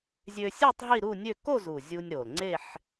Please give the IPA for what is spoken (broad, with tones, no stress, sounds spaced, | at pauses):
zʲ ø˧ sʲ ø˥˧ tˤ ɦ i˥˧ ɾ u˥˧ nʲ ø˥˧ k o˥˧ z u˨˩ zʲ u˧ nʲ ɾ o˨˩ l ŋ͡ǀ e˥˧ ħ